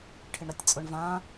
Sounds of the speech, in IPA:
ʈʰɪɳɾatʲt͡sʼʊɳ vã

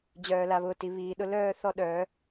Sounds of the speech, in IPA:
d͡ʑœː˨la˨βʊː˨ ti˨ βiː˨ɗʊ˦lœː˦ θɔ˦ɗœː˨˦

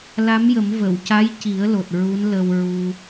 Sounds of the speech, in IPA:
la˧˥mjə˨˩˦mvə˨˩˨w ca˧˥jci˨˩˦ə̯lo˨˩t̚ ɹu˧˥nlə˧wɹu˧

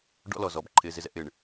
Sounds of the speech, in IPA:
ɖɔ̰˦lɔ˨z ɔ˨bǃʰɪ˨zɪ˨zɛ̰˨ʔ ɪ˨ɳ

